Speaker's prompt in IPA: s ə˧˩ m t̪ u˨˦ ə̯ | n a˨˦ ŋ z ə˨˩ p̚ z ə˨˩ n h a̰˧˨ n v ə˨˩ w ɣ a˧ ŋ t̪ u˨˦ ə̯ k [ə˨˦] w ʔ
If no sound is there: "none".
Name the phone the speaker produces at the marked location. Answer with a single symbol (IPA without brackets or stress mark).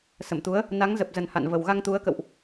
ə̰˧˨